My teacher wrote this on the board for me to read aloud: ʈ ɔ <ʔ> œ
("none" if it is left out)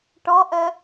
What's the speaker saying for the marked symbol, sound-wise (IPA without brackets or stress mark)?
ʔ